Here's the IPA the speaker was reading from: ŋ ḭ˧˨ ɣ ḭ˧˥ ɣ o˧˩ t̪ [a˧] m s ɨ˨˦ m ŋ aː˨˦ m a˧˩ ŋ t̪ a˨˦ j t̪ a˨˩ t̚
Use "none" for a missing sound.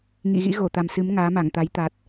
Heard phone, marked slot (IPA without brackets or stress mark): a˨˩